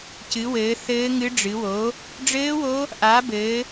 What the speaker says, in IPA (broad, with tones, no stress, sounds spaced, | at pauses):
c ɨ˨˦ w ɘː˨˦ θ ɘː˦˥ ŋ ɨ˦˥ ɖ͡ʐ ɨ˨˦ w o˨˦ | ɖ͡ʐ ɘː˦˥ w o˦˥ | ʔ a˨˦ b ɘː˨˦